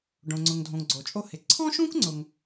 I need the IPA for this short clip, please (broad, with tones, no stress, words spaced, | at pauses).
ɖõ˩ŋ͡ǀʊ˩ŋdʱõ˩ŋ ɡ͡ǀo˩t͡ʃʼo˧hɪ˩ ǀʰɔ̃˥ʃũ˥k ŋ͡ǀʊ˩ŋ